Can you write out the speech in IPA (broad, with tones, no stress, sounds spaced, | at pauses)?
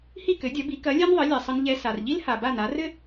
h i˥˩ k ɘ˩˥ dʲ ɐ˩˥ b i˩˥ k ɐ˩˥ lʲ ɛ˥ n ðˤ ɘ˩˥ lʲ ɛ˩ sˤ ɘ˧ n ʎ ɛ˧ s a˩ r ʎ i˥ l h a˩ b a˥˩ n a˩˥ r ɘ˥